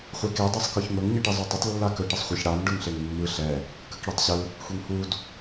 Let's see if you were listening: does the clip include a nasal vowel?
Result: no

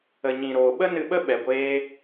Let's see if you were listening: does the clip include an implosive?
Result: yes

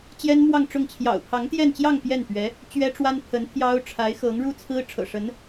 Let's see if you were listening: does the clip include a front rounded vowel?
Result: no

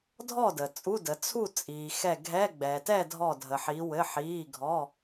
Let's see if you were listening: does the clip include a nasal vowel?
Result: no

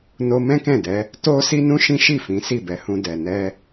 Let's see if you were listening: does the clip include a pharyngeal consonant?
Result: no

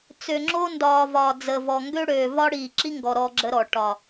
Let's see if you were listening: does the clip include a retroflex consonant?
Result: yes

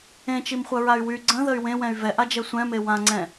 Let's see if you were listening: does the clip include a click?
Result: yes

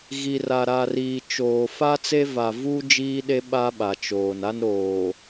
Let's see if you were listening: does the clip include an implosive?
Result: yes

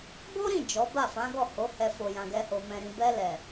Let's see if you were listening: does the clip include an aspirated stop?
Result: no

